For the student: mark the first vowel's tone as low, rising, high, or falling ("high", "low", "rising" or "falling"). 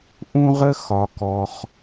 high